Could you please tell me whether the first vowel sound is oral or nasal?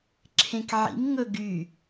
nasal